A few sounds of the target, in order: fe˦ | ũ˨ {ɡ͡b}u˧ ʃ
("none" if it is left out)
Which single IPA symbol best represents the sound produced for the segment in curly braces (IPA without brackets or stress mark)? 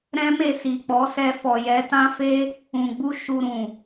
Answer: ɡ͡b